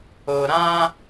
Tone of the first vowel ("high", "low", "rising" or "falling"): low